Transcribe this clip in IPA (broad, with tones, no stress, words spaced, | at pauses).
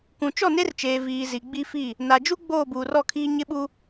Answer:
kũ˨t͡ʃɔ˦˨ne˦rt͡ʃeː˨ viː˨zi˨ ɡ͡bi˦fi˦˨ | na˨d͡ʒu˦ ɡ͡boː˦˨buː˨rɔ˦˨kʰiː˦ ɲɪ˦ɓu˦